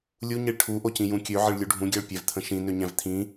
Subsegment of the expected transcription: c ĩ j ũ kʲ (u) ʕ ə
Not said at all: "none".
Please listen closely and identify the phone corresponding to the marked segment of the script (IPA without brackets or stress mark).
ø